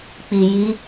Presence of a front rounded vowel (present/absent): absent